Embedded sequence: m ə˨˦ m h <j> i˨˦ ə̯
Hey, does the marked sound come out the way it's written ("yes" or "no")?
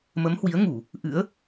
no